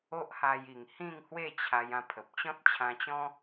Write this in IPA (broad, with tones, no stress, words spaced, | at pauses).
o˦ʔha˧ji˨˩ŋ hĩ˥˧ŋhwe˥˧t͡ɕʰa˧j ã˦pʰə˨p̚ t͡ɕɔ̃˦t̚t͡ɕʰã˧t͡ɕɔ̃˦